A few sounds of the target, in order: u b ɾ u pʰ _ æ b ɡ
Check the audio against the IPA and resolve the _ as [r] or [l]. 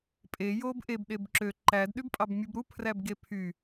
r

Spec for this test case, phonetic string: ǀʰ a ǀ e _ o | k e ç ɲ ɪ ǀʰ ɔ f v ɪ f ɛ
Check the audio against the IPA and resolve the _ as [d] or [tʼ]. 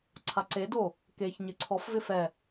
d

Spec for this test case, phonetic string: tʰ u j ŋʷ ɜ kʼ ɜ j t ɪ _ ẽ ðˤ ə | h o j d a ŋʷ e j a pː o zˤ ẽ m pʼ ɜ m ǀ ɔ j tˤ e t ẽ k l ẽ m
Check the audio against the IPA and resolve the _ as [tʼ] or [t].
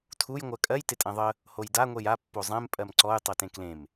tʼ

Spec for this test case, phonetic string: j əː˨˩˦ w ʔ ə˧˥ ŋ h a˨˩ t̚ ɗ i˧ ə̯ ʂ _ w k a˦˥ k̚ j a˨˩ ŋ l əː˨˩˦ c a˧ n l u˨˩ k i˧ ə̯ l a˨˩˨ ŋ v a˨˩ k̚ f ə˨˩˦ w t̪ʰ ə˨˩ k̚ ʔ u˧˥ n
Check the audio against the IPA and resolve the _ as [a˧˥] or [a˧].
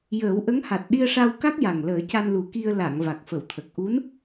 a˧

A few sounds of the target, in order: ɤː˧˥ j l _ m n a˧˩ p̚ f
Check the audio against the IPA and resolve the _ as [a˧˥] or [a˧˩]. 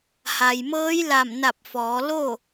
a˧˩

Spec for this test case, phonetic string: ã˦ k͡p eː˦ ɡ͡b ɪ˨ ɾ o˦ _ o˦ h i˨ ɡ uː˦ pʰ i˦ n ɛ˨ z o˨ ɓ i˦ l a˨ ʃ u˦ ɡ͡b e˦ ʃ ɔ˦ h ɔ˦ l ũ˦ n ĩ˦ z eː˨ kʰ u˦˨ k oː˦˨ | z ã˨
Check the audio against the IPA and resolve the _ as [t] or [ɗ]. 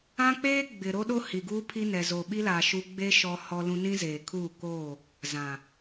ɗ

